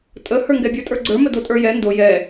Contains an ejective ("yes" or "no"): yes